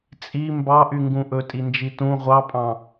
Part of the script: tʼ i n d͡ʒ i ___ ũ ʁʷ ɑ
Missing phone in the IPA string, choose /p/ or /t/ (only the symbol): t